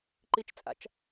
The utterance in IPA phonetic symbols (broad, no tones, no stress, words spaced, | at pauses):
ǃit͡ʃt͡sʼa̰t͡ʃ